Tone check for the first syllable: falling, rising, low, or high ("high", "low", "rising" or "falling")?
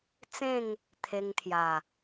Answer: falling